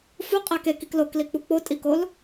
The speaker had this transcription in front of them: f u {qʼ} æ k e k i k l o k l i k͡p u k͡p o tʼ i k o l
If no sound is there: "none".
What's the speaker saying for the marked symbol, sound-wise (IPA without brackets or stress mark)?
qʼ